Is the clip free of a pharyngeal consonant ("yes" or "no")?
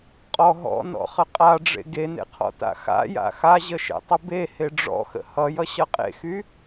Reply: yes